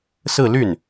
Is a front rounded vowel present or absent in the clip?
present